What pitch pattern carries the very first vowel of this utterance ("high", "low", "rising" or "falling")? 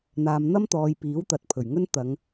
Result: low